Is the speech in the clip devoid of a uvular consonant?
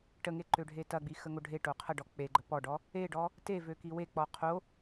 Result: no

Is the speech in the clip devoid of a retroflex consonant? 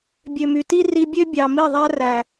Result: yes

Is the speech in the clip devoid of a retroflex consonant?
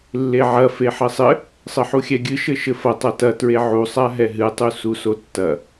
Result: yes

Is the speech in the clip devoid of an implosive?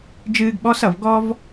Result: no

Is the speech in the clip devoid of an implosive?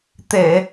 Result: yes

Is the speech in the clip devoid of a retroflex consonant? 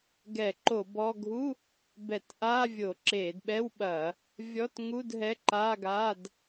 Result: yes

